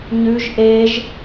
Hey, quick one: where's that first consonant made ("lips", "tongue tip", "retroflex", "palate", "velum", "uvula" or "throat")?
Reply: palate